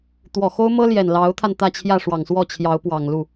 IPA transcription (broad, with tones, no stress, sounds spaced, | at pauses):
t̪ w ɔ˨˩ x o˥ ʊ̯ m ɤ˥ l j ɛ˨˩ n l ɑ˧˥ ʊ̯ t̪ʰ a˧ n t̪ ä˥˧ t͡ɕʰ j ä˥˩ ʂ w ɑ˨˩ ŋ s w ɔ˥˩ t͡ɕʰ j ɑ˧˥ ʊ̯ p w ɑ˨˩ ŋ l u˥˩